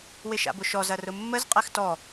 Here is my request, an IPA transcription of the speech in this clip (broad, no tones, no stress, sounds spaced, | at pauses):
w ɪ ʃ a̰ b ʊ ʃ ɔ z ɐ r ʊ mː ə z qʼ ɛ x t ɔ